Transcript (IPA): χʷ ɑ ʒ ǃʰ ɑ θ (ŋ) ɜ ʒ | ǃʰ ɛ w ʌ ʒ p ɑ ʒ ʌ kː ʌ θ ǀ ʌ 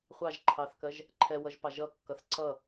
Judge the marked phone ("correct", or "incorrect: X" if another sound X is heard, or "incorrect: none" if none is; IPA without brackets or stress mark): incorrect: k